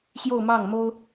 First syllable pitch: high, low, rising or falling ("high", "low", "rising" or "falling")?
falling